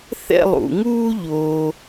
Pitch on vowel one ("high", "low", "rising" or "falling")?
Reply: falling